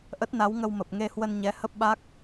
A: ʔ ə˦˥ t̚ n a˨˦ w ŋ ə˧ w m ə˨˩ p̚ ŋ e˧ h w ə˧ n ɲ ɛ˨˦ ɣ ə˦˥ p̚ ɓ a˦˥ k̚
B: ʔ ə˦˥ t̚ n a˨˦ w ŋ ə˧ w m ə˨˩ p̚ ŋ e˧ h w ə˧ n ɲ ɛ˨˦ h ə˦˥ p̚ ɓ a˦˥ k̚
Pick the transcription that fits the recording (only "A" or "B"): B